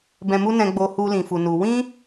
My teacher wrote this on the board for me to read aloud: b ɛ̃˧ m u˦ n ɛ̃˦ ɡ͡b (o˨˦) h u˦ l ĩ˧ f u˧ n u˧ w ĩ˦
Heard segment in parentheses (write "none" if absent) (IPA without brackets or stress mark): o˦